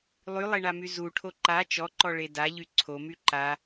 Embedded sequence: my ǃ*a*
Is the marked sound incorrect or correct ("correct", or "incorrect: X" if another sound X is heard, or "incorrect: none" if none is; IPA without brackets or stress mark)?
correct